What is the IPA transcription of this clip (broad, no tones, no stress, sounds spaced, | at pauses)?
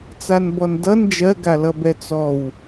t͡s a n b ɔ n d ʌ n d͡ʒ ɜ ɡ a l ʌ b ɛ t͡s ɔ w